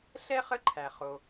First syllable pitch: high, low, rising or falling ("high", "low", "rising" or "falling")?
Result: high